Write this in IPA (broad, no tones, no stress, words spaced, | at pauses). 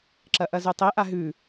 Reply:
ǁɐʔɐzʉtˤe ʔaɦʉ